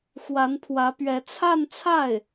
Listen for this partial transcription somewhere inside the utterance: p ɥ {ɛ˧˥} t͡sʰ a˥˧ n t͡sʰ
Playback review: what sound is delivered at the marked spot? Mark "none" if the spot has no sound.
ɛ˧˥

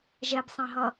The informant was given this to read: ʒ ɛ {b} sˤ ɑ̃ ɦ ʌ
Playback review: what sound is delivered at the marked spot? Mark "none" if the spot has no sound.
b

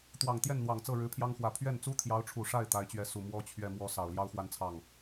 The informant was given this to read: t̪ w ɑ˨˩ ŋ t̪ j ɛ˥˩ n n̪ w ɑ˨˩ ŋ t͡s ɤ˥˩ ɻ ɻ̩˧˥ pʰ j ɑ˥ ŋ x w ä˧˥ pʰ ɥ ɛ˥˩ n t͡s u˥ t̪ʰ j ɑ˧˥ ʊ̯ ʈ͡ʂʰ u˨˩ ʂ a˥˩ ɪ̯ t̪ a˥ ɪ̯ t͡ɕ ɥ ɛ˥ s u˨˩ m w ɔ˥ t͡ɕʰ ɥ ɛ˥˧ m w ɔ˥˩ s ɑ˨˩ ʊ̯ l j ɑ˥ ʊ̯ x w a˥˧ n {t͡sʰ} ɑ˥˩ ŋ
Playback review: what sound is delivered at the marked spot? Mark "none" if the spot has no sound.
t͡sʰ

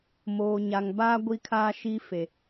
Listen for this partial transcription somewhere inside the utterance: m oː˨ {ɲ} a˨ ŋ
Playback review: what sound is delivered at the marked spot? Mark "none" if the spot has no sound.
ɲ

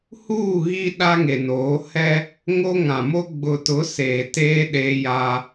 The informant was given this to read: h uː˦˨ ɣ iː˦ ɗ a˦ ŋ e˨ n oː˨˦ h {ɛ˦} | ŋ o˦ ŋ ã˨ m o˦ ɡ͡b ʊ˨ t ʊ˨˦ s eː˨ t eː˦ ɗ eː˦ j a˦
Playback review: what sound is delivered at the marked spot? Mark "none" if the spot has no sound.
ɛ˦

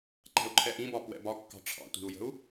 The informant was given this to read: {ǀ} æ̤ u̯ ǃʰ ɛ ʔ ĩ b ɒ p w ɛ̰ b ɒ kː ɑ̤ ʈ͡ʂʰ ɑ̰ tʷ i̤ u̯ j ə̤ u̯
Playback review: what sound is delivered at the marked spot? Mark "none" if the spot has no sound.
ǃ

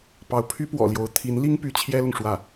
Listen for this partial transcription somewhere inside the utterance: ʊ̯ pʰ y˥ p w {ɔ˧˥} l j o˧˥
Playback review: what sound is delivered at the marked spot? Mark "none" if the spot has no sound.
ɔ̰˨˩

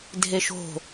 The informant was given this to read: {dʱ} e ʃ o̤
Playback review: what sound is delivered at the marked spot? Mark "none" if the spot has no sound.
dʱ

